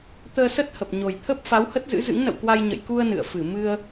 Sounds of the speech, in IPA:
t̪əː˧sə˦˥t̚ hə˨˩p̚ ɲo˨˩jt̪ʰə˦˥p̚ fa˨˦whə˦˥t̚ zɨ̰˧˥zɨ̰˧˥ŋnə̰˧˨wkwa˧j ɲə̰˧˨jku˧ə̯ nɨ̰˧˨ə̯fɨ˧˩ mɨ˧ə̯

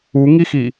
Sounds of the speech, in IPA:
uŋixi

